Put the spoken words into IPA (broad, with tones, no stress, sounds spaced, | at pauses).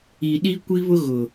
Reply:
i˨ ɗ i˦ kʷ i˦ β ʊ˦ ɣ ʊ˨